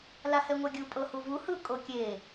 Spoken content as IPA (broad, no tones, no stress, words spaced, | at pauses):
lahɛŋʷaɡʲu pʼɤhuvu hɯ kʼokʲe